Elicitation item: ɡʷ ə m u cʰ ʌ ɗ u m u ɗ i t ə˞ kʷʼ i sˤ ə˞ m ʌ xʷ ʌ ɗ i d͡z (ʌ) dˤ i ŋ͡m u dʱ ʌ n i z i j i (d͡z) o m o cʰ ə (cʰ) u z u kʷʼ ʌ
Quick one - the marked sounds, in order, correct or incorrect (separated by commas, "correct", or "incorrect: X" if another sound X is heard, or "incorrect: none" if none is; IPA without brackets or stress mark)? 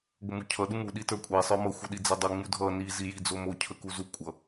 correct, correct, incorrect: k